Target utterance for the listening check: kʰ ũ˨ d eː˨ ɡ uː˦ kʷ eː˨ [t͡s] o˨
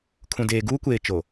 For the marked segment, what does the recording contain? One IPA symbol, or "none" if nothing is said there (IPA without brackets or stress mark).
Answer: t͡ʃ